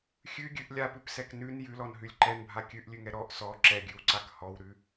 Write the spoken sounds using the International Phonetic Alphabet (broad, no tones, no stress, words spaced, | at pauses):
xʲʉɡʲʉʔ lʲapʉpsɛk nʉn jʉlɔnɦʉlʲ ǃɛnbʱa kʲʉʔlʲʉŋɛ ɾɔʔ sɔ ǁɛɡʲʉwǀak hɔwɾʉ